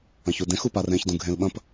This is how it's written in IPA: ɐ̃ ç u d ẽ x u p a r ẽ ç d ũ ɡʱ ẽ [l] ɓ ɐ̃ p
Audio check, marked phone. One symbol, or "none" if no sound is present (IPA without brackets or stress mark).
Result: l